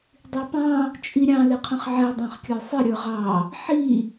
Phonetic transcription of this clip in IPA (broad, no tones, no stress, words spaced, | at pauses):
dˤipɑ̃ | t͡ʃʼiɾʲɑ̃ lɪqʰə̃χʕɛ dˤɑ̃χkʲə˞sˤɪ ɾʲə˞ʁɑ | ħi